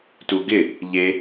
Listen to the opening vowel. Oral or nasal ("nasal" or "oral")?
oral